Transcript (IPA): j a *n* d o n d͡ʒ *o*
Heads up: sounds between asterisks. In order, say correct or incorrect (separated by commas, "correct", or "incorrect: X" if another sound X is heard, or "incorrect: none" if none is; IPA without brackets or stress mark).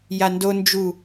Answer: correct, incorrect: u